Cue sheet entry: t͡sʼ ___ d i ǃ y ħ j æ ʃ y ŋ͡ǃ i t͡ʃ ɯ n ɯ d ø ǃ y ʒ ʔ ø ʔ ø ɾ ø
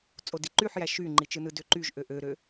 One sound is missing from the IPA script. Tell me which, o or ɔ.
o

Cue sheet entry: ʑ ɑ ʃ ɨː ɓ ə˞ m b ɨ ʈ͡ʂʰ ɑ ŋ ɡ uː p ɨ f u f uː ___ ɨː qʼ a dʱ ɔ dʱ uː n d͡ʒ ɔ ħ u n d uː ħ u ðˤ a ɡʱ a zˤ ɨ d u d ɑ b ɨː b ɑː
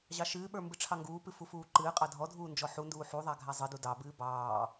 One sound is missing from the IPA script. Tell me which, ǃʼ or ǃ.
ǃ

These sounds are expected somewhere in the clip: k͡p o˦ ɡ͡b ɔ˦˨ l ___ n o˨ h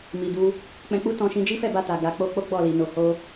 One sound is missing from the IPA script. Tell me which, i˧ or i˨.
i˨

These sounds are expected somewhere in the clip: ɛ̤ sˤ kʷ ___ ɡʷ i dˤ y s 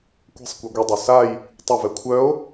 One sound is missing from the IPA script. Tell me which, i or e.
e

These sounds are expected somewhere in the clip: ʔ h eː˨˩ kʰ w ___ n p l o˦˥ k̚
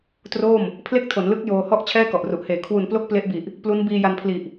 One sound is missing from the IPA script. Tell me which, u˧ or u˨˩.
u˨˩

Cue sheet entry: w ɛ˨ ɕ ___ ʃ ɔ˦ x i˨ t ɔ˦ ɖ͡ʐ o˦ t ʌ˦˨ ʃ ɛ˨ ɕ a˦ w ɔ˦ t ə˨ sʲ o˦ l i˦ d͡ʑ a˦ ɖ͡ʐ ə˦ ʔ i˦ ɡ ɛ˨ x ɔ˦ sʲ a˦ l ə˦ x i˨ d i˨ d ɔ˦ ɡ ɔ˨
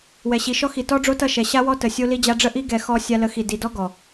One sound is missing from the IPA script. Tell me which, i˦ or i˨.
i˨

